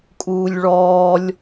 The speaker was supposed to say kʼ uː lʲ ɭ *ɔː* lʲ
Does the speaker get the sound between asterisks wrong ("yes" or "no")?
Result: no